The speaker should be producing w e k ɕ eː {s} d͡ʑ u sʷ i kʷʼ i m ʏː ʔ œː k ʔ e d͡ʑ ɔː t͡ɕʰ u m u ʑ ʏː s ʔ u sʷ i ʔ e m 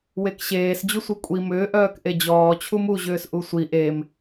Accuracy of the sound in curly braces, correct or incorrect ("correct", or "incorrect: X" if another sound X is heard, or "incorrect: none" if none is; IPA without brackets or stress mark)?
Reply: correct